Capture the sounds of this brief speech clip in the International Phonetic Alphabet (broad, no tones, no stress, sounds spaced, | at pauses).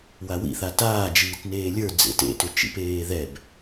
w a w ḭ θ a t aː d͡ʒ iː t n eː lʲ ə˞ d͡z ḛ t ḛ t ʏ t͡ʃ ḭ p eː ð ɛ b